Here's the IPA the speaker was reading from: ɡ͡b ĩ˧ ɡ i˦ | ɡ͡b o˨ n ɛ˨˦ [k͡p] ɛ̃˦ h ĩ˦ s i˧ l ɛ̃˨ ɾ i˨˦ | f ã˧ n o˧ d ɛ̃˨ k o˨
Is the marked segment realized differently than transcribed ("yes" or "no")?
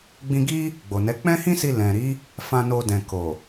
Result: no